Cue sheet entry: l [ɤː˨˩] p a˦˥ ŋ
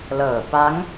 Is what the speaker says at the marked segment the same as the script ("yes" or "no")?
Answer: yes